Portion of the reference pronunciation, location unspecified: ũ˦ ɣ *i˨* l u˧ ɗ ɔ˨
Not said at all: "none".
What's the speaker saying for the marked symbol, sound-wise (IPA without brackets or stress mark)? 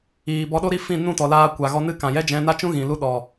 ĩ˨